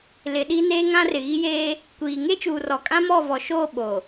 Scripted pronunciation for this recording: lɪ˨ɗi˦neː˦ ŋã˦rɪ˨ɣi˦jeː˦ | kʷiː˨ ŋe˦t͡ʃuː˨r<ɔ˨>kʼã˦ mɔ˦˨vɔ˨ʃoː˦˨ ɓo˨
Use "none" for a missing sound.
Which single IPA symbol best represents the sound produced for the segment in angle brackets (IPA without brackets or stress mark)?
ɔ˨